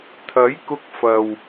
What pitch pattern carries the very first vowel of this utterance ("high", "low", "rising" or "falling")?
rising